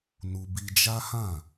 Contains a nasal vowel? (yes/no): yes